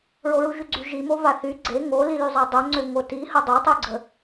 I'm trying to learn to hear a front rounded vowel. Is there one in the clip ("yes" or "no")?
yes